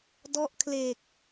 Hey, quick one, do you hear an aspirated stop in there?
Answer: yes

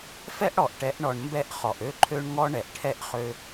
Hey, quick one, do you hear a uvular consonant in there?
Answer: yes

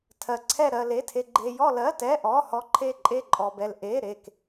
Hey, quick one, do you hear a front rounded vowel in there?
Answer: no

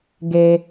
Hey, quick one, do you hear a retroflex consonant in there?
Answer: no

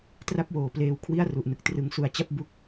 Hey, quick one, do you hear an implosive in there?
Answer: no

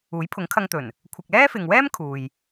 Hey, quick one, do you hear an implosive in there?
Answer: no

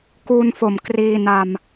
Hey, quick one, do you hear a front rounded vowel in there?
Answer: no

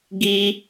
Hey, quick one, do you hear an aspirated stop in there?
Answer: no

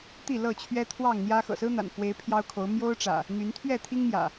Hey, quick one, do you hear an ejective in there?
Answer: no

